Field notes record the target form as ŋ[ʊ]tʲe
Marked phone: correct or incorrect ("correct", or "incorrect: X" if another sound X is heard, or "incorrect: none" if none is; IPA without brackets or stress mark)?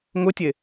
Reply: correct